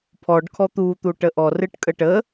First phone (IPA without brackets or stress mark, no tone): pʰ